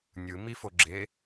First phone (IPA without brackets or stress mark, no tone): nʲ